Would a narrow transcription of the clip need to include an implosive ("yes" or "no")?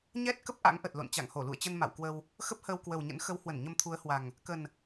no